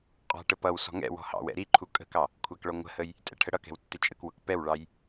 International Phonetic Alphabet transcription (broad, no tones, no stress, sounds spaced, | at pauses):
qʼ ɑ̤ ʈ ə p ʌ w s ɔ̤ ŋ ɛ̰ w ɔ̤ h ɑ̰ w ɛ̰ ɾ i ǃʰ u kʼ ə̤ k ɑ | kʷʰ æ k ɭ ɔ ŋʷ ə̤ h ə j | tʼ ɛ̰ ʈʰ ə ɽ ʌ k ɛ̤ w tː ɪ t͡ʃʼ ə̰ k w ʊ k p ɛ w ɭ ɑ j